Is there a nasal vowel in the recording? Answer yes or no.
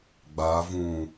yes